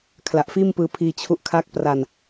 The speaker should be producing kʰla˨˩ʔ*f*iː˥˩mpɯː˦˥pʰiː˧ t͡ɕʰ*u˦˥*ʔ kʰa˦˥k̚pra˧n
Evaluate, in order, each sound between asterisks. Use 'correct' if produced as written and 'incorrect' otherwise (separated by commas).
correct, correct